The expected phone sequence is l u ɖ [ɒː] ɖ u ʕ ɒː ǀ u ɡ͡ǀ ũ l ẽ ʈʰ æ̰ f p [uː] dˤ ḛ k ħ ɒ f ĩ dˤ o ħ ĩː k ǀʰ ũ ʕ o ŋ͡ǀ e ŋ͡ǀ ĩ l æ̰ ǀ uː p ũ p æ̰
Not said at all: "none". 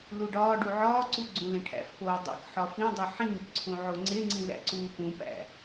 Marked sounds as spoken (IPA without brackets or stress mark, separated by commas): ɒː, oː